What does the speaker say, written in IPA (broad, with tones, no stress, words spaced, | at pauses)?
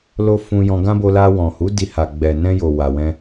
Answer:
lo˧ fũ˧ jɔ̃˧ɡã˦ bo˧la˧ wɔ̃˨hu˨˦ di˧ha˨ ɡ͡bɛ˨nɛ̃˧ jo˨ wa˨wɛ̃˧